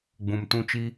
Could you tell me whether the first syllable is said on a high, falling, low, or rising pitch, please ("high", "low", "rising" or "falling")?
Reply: low